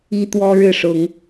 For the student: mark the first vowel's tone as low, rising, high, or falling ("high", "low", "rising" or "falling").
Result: high